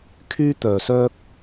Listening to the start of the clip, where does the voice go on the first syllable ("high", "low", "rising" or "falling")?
high